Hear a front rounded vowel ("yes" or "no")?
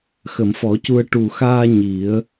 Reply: no